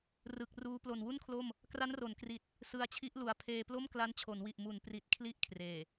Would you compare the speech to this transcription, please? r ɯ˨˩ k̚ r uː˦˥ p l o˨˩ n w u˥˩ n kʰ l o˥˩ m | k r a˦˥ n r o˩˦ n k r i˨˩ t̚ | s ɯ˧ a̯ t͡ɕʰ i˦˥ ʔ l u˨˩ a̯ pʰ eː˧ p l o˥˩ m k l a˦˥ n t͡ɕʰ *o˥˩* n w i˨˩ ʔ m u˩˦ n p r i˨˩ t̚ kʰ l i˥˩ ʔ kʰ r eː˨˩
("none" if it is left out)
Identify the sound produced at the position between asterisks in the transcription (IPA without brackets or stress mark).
o˩˦